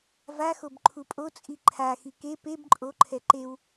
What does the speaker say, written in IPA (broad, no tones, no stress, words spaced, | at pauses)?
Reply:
vaxob ǃʰupʼot͡sʼi ǃʰaxi ke peb ǃʼoǃʰɛ ǃew